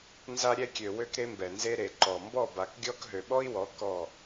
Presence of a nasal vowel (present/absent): absent